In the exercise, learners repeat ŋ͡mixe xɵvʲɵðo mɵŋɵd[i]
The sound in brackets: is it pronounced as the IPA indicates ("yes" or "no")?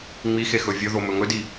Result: yes